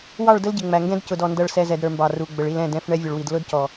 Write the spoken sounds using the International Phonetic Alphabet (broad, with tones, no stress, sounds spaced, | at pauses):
w ɑ˦˨ ɭ d ə˦ l ɟ ɪ˨ ŋ͡m æ˨ ŋ ɡ ɛ̃˦ d c ʊ˨ d ɔ˨ n d ʌ˨ ɭ s ɛ˨ z ɛ˨ d ɾ ə˞˨ m b ɑ˨ r u˨ ɡ͡b ə˨ ɭ i˨ l ɛ̃˦˨ d ɛ̃˦˨ f ɳ ɛ˦ vʲ ʊ˨ ɭ w i˨ d l ʊ˦ d c ɔ˨